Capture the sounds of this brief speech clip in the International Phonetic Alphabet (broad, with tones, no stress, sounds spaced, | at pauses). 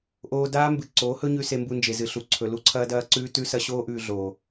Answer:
ʔ oː˧ d aː˦ m b ɨ˨ ǀ oː˨˦ h ɵ˦ ɲ ʉ˧ s e˧ m b u˧ n d͡ʒ e˨ z ɨ˨ ɬ u˨ ǀʰ ɵ˨ l u˦ ǀʰ ɐː˦ d ɐː˦ ǀ ʉː˦ t ʉ˦ s ɐ˦ ɕ oː˦ ʔ ʉː˧ ɮ oː˨